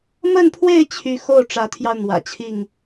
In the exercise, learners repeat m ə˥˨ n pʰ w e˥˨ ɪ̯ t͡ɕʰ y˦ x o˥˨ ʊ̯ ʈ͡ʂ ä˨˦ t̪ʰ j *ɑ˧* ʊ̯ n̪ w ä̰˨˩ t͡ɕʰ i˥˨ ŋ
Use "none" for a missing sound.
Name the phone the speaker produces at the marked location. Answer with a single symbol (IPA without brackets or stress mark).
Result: ɑ˧